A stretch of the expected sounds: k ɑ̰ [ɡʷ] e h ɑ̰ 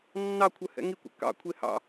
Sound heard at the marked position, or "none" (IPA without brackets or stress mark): kʷʰ